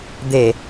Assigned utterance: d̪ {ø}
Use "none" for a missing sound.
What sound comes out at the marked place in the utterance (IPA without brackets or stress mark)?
e